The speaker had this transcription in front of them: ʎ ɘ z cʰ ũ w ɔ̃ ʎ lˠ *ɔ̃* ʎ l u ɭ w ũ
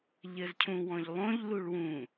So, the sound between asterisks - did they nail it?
no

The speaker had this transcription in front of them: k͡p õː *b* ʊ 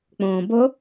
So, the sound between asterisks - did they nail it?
yes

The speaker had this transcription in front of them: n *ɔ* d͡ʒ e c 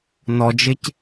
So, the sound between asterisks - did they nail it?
yes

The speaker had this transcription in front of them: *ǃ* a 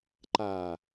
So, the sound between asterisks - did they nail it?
yes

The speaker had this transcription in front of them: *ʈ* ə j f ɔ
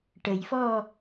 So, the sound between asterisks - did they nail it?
yes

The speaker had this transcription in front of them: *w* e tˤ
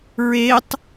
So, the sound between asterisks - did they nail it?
no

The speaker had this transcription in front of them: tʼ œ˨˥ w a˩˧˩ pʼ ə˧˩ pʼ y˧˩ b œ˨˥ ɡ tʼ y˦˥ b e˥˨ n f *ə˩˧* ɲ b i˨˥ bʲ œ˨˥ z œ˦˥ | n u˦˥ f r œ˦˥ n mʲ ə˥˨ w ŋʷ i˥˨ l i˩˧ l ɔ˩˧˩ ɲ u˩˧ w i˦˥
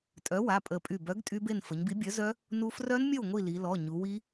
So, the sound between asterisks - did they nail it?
yes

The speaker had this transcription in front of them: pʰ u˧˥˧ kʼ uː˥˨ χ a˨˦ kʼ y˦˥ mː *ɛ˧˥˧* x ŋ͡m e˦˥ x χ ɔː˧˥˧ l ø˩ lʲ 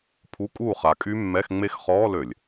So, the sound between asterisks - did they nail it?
yes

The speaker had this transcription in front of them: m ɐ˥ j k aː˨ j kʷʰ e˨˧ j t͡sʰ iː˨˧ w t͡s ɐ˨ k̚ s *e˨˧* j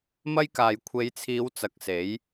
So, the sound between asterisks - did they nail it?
no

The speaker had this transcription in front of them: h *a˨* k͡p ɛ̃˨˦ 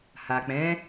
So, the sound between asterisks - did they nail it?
yes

